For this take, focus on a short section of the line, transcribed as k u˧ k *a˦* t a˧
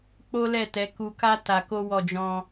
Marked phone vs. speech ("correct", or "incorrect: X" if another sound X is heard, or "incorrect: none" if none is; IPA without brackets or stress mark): correct